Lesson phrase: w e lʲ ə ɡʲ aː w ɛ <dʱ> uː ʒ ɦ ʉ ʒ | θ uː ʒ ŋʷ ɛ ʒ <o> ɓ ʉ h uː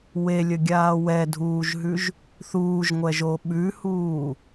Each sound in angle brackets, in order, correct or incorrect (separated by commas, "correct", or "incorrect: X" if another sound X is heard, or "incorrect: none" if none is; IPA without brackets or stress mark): correct, correct